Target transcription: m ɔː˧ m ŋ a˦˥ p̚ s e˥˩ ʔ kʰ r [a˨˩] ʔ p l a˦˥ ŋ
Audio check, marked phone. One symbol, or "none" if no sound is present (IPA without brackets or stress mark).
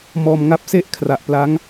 a˨˩